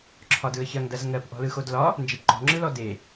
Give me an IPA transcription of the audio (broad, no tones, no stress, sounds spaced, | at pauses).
ǁʰ ɒ d ɯ ə̯ ç ɐ ŋ d ɐ z ŋ ɜ p ʔ ɔ̤ l ɯ x o d l ɒ | n d͡ʒ e p ǃ ɔ̤ ŋ͡ǁ ɯ l ɔ d e